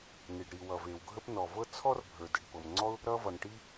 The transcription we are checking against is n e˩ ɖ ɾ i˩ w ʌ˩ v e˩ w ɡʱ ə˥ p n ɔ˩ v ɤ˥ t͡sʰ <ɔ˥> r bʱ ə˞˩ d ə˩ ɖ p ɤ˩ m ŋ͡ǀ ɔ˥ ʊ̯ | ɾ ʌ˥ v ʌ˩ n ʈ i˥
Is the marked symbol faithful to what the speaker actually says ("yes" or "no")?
yes